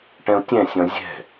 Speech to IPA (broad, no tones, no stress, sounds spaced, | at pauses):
ʈ ɛ̃ u̯ tʲ ɛ̃ sʲ ɔ̃ zʲ ɛ̤